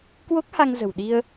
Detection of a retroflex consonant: absent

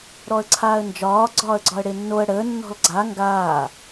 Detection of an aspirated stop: present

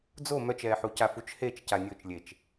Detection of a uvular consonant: absent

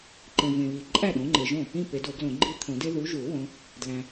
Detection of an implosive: present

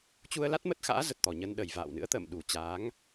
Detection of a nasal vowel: absent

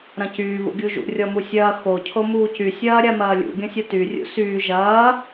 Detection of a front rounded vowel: present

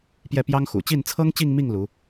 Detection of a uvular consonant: absent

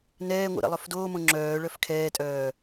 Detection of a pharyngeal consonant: absent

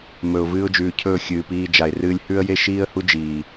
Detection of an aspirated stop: present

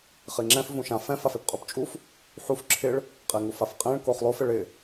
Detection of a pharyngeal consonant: present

